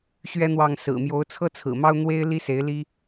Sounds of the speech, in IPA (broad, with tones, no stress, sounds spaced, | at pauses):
ɕ ɥ ɛ˥ n̪ w ɑ˥˩ ŋ s ɹ̩˨˩ m j o˧˥ ʊ̯ t͡sʰ ɤ˥ t͡sʰ ɹ̩˨˩ m ɑ˥ ʊ̯ n̪ w e˥ ɪ̯ l i˥ s e˧˥ ɪ̯ l i˥